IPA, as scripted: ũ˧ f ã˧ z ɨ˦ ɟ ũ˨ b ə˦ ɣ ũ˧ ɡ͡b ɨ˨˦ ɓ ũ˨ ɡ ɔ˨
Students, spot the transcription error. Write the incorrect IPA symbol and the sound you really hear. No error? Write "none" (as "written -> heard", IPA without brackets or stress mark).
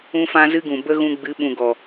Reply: ɟ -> ɡ